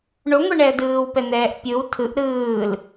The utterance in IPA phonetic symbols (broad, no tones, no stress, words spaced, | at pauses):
ɳoŋʷɛɳɛə̯ dɯːwpɛn̪ɛːʔ pʲɯw tʰɯʔ ɾɯːl